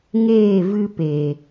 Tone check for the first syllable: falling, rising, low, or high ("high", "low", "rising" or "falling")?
falling